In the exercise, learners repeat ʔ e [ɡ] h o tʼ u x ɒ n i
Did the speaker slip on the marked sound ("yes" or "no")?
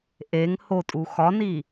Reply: yes